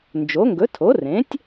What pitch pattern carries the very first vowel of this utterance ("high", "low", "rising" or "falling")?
rising